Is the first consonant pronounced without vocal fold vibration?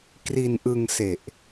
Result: yes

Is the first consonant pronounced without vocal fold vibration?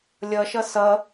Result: no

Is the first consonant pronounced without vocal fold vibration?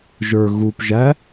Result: no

